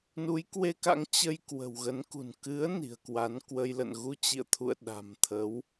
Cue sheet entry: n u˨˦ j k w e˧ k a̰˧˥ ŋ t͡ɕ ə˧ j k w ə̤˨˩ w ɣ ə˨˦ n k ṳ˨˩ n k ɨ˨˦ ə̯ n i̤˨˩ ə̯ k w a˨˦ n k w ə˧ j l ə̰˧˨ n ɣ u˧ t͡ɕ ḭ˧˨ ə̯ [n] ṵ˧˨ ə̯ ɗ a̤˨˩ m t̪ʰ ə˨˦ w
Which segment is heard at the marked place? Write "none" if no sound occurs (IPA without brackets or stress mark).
t̪ʰ